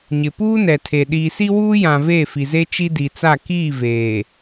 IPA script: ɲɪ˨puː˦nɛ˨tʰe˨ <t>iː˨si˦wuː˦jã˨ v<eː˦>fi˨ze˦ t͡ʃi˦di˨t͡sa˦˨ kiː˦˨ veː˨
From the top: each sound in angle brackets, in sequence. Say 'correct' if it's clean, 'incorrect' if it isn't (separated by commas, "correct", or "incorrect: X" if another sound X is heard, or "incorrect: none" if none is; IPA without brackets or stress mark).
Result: incorrect: ɗ, incorrect: eː˦˨